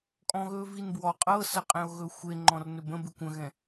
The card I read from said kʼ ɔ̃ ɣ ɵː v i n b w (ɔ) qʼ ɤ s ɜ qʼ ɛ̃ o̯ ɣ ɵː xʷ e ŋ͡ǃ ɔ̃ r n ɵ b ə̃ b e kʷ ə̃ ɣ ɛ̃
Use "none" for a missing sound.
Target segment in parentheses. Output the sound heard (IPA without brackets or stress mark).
ɔ